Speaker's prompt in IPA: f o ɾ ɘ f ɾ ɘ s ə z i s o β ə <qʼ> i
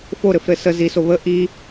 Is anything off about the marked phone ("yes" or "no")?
yes